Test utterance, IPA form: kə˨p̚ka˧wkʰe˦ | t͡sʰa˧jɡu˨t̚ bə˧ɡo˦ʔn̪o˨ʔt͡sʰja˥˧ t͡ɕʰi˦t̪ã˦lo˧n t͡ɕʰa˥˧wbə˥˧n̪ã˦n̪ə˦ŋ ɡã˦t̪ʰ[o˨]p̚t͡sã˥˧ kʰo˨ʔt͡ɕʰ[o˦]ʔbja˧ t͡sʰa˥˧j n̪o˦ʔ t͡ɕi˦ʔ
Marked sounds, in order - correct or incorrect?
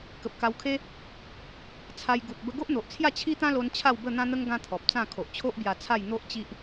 incorrect: ɔ˨, correct

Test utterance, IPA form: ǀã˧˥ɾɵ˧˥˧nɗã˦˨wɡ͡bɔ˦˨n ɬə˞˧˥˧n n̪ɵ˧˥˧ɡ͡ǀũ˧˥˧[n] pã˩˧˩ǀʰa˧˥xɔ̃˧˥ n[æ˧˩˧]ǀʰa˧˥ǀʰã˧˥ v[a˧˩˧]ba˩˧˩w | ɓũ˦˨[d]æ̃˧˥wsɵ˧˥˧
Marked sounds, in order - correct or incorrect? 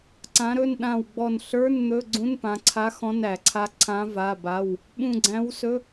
correct, correct, incorrect: a˩˧˩, incorrect: ɡ͡ǀ

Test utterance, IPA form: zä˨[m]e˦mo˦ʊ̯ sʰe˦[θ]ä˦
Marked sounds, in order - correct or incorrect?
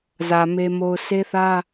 correct, correct

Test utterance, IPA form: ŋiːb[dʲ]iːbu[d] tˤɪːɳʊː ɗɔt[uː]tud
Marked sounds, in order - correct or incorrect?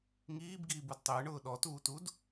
incorrect: ɡ, correct, correct

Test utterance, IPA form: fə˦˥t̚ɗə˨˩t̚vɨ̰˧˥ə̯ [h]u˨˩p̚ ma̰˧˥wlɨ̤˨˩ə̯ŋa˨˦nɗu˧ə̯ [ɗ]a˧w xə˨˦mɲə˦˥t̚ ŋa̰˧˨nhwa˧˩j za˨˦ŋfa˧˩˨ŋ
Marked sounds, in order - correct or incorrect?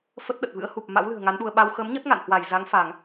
correct, incorrect: ɓ

